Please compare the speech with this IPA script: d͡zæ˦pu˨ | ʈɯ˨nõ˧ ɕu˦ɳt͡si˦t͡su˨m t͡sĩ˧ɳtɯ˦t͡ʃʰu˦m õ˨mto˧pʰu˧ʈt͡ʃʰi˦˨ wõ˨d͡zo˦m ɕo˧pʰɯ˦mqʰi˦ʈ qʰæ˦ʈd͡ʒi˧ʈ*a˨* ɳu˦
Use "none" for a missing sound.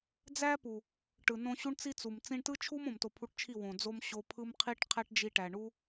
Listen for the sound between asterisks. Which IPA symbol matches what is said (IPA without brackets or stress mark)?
æ˨